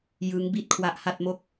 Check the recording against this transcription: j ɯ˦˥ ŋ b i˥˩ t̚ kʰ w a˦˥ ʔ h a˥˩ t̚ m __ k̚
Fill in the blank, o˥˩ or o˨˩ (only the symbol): o˥˩